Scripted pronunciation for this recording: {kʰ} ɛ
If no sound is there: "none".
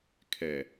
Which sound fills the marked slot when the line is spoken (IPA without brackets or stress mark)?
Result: kʰ